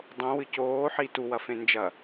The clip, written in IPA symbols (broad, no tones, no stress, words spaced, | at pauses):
dˤõwɨ coːħi tuwɐfẽ nd͡ʒɐ